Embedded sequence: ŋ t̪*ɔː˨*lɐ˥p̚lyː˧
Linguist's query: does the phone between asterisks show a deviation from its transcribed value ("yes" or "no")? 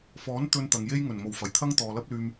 no